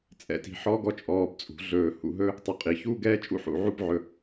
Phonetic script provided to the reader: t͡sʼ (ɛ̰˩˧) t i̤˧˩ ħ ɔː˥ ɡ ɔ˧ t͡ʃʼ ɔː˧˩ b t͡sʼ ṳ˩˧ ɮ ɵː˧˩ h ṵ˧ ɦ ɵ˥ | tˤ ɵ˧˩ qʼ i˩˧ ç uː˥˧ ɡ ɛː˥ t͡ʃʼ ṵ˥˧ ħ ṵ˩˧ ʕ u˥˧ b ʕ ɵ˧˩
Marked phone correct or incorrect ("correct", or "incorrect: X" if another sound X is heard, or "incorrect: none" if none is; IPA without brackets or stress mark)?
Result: incorrect: ɛ̰˧˩